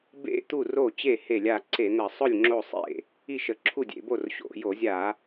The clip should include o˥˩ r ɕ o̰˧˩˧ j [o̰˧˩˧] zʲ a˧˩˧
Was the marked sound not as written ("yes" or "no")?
yes